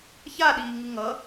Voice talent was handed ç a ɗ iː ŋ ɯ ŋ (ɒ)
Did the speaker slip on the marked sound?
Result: yes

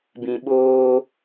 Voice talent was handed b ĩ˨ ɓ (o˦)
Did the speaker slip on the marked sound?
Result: yes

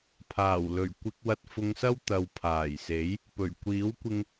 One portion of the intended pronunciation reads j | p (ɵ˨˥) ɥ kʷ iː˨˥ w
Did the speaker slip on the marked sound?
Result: yes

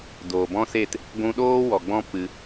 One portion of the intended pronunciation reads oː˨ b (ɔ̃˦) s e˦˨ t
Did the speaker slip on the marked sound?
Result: no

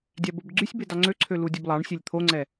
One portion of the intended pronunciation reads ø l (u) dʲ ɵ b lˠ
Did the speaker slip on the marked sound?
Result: no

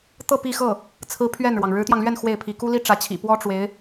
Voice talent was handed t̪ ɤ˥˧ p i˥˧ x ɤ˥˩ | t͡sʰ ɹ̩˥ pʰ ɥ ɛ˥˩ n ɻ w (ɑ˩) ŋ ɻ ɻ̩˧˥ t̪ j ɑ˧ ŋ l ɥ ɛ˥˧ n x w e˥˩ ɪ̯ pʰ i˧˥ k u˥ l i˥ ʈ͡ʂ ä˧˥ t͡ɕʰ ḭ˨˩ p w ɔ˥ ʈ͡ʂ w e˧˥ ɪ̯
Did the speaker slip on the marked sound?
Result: no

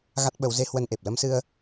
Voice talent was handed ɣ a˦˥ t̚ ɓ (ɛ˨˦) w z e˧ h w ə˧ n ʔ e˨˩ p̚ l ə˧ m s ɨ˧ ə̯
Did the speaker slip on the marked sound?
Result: yes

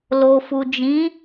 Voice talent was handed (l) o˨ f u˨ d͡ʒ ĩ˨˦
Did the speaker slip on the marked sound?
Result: no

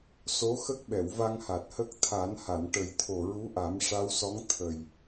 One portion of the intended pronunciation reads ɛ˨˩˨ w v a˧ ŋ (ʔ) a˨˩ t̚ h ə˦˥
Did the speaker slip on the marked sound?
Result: yes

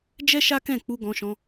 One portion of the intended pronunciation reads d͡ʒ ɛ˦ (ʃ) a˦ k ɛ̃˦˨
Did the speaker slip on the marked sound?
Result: no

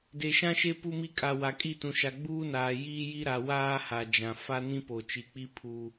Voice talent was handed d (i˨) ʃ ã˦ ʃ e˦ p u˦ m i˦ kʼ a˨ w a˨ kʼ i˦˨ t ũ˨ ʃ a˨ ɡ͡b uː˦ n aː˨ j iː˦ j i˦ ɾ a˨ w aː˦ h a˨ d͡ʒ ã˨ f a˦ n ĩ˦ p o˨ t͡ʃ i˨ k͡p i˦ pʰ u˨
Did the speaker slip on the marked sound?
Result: yes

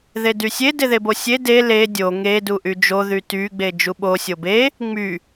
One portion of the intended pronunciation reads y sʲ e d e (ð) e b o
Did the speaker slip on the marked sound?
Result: no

